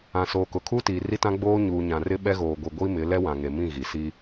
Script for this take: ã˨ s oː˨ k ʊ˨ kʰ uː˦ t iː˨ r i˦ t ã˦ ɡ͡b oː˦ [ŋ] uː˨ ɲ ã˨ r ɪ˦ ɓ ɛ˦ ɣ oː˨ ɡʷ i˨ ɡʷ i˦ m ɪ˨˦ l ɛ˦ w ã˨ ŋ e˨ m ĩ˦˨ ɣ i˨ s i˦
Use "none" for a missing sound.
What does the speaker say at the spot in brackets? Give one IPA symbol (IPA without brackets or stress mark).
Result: ɲ